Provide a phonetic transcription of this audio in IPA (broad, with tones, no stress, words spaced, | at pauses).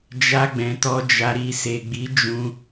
d͡ʒa˧ɡ͡bɛ̃˨tɔ˧d͡ʒa˧ ɾi˧ se˨ɡ͡bi˨˦ d͡ʒũ˧